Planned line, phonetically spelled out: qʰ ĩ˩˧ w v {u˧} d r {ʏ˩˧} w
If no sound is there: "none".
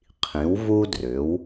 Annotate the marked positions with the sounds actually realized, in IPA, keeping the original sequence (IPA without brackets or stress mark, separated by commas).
u˧, ʏ˩˧